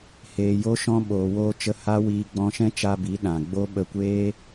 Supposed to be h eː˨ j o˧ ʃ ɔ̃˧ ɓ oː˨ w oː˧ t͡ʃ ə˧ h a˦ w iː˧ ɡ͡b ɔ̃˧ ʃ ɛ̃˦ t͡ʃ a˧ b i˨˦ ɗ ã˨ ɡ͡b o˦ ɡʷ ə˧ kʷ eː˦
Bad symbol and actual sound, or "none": ɡʷ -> ɓ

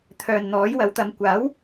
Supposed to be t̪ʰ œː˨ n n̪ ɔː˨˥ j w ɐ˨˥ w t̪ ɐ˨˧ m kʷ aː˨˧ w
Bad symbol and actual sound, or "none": aː˨˧ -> aː˨˥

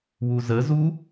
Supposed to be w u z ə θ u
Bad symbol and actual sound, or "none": θ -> z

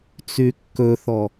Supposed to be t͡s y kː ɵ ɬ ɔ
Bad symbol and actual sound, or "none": ɬ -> θ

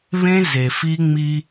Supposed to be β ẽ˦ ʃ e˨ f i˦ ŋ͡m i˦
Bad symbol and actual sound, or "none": ʃ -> z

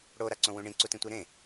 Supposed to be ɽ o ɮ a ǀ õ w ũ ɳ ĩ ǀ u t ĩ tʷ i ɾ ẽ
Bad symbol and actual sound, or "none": ɮ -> ɾ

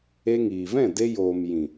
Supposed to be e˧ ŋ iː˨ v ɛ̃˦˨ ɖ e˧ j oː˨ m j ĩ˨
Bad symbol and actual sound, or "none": ɖ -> d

